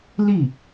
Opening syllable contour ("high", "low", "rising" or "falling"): falling